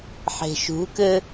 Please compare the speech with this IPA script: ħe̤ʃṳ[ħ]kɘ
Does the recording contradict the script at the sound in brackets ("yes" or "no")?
yes